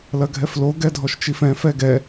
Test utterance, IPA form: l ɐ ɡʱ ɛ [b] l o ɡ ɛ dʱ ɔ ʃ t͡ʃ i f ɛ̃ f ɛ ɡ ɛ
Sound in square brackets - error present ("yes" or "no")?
yes